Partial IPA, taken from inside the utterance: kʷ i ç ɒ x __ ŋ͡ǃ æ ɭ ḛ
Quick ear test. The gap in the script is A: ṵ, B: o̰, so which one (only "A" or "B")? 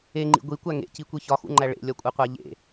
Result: A